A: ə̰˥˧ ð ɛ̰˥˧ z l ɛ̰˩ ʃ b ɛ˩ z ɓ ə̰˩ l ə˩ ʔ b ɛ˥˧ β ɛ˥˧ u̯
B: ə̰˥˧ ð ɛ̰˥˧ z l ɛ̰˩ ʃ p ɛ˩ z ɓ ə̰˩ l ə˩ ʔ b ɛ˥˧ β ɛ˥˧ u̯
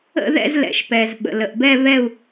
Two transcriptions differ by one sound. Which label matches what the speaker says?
B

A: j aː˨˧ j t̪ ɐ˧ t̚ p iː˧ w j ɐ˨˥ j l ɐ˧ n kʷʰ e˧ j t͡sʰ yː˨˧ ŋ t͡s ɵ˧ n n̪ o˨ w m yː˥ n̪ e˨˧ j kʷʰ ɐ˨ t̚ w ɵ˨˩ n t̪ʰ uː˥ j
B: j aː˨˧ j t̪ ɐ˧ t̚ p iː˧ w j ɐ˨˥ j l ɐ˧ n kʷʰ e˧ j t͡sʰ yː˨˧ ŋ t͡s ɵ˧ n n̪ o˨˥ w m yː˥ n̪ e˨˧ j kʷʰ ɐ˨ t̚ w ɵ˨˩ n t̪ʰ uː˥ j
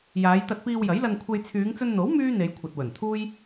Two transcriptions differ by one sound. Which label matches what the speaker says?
B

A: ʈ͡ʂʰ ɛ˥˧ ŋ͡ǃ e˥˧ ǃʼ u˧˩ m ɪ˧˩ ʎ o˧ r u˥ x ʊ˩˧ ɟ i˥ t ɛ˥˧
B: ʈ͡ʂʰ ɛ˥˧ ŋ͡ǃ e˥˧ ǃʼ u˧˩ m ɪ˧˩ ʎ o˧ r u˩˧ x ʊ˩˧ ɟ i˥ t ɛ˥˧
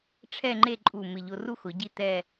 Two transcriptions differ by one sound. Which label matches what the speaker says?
A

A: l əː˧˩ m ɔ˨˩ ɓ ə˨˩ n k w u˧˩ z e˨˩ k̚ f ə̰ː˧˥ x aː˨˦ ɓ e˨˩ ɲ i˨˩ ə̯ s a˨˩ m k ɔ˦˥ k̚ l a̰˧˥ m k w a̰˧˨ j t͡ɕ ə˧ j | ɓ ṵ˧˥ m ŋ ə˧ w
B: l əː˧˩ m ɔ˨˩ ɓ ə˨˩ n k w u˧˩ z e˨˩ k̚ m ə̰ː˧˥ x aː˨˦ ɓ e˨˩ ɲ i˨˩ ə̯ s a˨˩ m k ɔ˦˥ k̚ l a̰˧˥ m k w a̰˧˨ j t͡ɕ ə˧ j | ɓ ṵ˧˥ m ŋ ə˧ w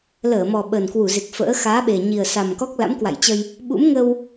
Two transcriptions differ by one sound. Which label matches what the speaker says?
A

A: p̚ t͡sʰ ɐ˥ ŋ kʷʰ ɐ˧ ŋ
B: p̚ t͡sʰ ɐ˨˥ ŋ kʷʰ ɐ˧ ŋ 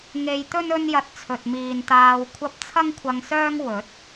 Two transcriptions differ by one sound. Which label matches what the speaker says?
A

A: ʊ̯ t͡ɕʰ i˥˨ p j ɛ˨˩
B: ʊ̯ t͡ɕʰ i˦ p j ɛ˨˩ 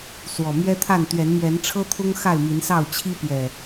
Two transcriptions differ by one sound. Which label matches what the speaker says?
B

